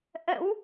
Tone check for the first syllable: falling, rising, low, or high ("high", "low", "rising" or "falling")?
rising